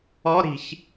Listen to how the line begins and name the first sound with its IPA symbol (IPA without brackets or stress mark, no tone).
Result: ɔ